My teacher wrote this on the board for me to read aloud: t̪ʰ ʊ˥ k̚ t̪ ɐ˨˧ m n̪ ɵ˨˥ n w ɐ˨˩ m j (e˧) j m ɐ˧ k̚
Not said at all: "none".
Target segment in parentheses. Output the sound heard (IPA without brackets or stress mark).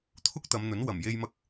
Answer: e˧